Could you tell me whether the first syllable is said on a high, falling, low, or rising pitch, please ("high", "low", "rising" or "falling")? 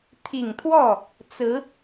low